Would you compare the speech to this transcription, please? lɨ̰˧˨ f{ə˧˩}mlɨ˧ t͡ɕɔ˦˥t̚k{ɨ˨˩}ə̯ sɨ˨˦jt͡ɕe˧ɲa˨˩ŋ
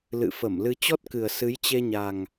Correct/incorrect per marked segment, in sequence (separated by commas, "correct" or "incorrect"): correct, correct